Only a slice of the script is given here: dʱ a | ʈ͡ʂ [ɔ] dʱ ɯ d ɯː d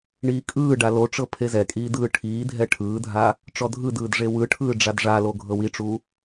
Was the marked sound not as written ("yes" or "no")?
no